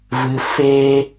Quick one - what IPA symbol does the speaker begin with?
v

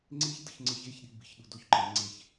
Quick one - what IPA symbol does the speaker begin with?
ŋ͡ǀ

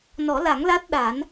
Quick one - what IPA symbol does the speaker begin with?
n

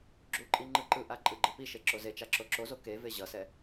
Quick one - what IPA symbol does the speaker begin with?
ɡ͡ǁ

